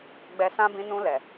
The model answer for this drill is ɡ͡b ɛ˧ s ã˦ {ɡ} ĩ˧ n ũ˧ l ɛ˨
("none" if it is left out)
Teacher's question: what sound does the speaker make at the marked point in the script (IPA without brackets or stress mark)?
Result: b